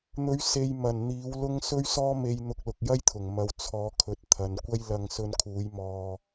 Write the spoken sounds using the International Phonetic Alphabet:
n̪ ɵ˨˥ ɥ s e˨ j m ɐ˨˩ n n̪ iː˨˥ w l ʊ˥ ŋ s ɵ˥ ɥ s ɔː˥ m e˧ j n̪ ʊ˧ k̚ l ʊ˨ k̚ j ɐ˥ j t̪ʰ ʊ˨˩ ŋ m ɐ˨ w t͡sʰ ɔː˨˥ kʰ ɵ˨˥ t̚ t̪ʰ ɐ˨ n kʷ ɐ˥ j l ɐ˧ ŋ s ɵ˧ n kʰ uː˨˥ j m ɔː˧

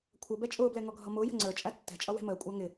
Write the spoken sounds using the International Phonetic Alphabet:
kʷʰ ʌ b ɛ t͡ʃʼ ʊː b l ɛ ŋ ɔ ɡʱ ʌ m ʊː j ə̤ ŋ͡ǀ ə˞ t͡ʃʼ æ tː ɛ̤ t͡ʃʼ ʌ w ɛ̤ m əː kʷʼ æ ŋ ɪ

